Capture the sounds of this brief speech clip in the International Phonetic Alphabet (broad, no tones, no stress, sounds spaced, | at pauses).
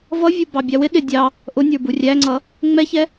v ʌ vʲ u b ɑ bʲ ɑ w ɪ ɗ ɪ dʲ ɑ | ʔ ʊ nʲ ə˞ b u rʲ æ ŋ͡ǀ ʌ | ŋ͡m ɛ ç ɛ